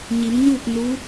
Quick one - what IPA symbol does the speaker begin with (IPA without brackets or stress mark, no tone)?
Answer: ɲ